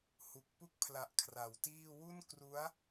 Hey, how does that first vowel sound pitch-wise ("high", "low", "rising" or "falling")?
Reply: low